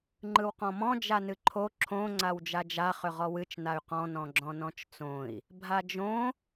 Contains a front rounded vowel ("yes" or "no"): yes